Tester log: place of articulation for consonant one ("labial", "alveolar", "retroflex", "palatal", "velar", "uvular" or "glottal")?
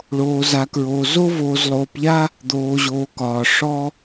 retroflex